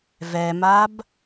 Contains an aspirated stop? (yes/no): no